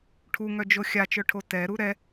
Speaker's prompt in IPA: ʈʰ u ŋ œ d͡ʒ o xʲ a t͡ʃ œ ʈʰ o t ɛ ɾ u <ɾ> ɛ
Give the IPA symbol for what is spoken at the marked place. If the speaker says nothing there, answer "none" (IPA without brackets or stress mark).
ɾ